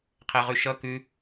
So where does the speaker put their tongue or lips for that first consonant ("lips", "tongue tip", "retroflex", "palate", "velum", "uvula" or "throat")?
uvula